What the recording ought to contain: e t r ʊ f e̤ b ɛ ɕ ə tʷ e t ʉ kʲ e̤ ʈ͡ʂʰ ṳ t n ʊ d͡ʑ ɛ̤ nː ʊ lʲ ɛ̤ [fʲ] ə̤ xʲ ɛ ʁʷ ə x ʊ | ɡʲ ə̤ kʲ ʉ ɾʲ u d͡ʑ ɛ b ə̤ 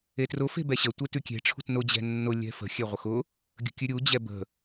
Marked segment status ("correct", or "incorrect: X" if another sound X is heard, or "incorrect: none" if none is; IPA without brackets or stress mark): incorrect: f